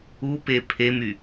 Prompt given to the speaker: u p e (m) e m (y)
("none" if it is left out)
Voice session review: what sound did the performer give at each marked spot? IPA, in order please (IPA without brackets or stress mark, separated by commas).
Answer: pʰ, y